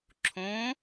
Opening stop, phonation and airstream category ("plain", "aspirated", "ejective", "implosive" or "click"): click